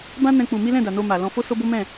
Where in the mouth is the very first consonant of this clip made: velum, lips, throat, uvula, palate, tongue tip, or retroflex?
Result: lips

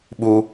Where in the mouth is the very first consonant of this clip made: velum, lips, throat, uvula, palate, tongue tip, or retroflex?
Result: lips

